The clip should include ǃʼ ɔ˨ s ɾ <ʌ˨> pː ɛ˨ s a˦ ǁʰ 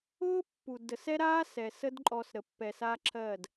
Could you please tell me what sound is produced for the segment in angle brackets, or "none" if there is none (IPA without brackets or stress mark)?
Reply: ə˨